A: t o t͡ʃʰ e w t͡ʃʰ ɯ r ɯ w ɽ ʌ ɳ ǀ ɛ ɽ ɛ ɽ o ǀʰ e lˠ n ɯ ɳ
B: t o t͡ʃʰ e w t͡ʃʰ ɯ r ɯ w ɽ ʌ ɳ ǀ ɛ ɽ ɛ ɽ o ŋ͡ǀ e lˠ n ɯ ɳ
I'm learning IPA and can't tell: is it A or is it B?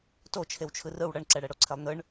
A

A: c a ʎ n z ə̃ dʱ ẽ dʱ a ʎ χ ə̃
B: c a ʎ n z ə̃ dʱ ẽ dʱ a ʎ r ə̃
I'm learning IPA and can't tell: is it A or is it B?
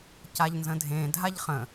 A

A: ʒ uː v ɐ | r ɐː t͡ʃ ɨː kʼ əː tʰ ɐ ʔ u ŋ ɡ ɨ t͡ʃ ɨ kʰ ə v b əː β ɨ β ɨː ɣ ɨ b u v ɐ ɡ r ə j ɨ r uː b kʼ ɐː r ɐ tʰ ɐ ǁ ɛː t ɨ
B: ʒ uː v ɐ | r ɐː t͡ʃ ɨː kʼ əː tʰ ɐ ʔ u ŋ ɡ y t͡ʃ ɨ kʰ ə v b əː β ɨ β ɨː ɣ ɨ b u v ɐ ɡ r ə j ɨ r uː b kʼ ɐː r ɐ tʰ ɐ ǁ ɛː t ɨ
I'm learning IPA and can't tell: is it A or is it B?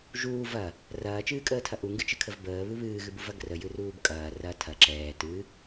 A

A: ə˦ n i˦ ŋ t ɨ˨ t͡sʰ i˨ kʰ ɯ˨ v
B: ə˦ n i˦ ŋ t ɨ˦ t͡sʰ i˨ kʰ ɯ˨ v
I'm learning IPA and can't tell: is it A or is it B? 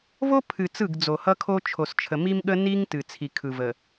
A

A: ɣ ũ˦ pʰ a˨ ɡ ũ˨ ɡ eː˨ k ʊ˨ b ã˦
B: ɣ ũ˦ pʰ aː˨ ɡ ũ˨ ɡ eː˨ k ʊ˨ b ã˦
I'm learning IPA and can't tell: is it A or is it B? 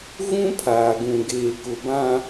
B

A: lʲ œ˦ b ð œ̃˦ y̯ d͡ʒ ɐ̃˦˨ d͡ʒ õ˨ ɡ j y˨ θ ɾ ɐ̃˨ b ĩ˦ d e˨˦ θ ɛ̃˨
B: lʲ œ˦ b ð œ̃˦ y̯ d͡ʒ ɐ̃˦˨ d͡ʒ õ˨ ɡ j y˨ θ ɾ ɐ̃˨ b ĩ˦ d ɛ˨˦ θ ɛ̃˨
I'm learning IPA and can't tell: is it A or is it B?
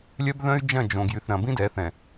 B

